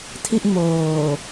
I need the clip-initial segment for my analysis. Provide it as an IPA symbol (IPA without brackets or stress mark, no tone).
tʰ